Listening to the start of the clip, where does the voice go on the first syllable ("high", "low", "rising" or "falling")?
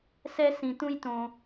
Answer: high